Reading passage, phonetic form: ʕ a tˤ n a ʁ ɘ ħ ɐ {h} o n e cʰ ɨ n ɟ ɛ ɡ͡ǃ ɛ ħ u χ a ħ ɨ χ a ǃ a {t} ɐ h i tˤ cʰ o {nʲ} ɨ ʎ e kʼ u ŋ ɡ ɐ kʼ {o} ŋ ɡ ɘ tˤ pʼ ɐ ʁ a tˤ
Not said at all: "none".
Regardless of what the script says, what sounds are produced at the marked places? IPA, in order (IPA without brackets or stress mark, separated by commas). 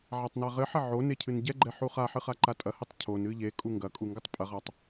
ʕ, tʼ, n, u